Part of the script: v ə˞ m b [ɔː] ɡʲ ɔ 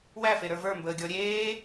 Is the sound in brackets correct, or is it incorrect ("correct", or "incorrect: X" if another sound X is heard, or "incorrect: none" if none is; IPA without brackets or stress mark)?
incorrect: əː